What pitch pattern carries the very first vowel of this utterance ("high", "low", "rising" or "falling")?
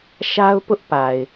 high